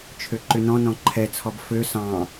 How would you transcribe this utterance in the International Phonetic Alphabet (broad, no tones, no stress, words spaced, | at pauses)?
t͡ʃʰøǃʏnɔ̃nɔ̃ ǃʰɛt͡sʰɔb fø sɑ̃